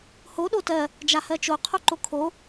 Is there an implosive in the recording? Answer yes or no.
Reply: yes